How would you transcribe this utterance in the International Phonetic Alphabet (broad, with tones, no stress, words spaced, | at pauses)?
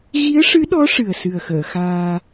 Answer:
ɣi˧˥ə̯ʂɨ˧˥ɗɔ˧˥ ʂɨ˨˩ə̯sɨ˨˩ə̯xəː˨˩˨xaː˧